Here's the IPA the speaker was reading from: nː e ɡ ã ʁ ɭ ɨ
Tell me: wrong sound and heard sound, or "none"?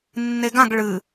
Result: ʁ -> ɡ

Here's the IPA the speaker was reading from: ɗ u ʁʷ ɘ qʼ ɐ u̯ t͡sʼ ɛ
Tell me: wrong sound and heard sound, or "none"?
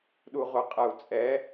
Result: none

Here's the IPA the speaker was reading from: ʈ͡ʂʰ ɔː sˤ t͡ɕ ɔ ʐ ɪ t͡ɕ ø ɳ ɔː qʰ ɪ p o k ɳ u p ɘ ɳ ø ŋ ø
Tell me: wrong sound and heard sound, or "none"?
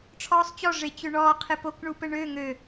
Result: none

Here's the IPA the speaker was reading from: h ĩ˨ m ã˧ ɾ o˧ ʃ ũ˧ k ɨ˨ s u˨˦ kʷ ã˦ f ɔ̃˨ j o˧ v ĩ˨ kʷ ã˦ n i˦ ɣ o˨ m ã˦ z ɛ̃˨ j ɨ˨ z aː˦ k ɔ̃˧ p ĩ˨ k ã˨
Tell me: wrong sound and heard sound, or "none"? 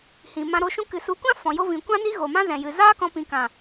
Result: none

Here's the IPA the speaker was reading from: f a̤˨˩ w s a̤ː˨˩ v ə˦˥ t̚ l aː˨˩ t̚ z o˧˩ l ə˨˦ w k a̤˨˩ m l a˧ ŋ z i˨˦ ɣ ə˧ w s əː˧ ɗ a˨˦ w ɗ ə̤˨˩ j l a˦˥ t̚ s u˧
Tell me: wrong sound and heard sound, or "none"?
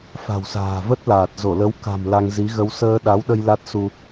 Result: ə̤˨˩ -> ə˧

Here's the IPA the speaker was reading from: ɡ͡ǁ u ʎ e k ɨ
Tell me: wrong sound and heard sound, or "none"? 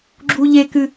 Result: none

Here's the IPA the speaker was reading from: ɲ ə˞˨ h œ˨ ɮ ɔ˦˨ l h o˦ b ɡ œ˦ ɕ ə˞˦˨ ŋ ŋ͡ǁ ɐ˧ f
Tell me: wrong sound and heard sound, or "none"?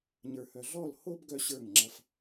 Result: none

